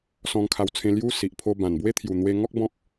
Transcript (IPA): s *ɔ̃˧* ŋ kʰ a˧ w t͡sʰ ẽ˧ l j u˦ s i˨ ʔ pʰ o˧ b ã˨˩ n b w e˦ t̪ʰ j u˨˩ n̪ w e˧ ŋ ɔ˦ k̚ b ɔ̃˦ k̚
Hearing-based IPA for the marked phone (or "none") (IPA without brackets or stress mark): ɔ̃˧